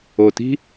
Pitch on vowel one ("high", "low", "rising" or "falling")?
low